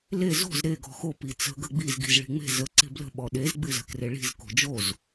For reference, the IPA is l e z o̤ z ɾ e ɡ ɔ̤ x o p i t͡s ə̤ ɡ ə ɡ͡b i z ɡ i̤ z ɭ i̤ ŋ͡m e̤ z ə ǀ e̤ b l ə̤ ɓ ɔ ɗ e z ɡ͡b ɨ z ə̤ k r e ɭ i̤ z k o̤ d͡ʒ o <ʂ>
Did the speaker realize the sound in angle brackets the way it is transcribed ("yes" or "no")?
no